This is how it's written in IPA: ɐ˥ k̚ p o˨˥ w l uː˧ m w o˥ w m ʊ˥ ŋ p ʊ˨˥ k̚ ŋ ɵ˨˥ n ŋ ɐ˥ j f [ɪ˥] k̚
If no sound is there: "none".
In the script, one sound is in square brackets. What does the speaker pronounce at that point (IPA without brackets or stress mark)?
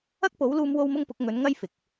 ɪ˨